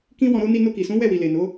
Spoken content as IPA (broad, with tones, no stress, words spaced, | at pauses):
kĩ˦wɔ̃˧ɾo˦ ni˧no˧ki˨sũ˨˦ wɛ˦˨wi˨ le˨no˨˦